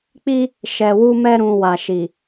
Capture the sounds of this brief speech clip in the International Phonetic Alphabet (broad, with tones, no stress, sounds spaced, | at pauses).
k͡p i˦ | ʃ ɛ˧ w u˦ m ɛ˦ ɾ ũ˧ w a˨ ʃ i˨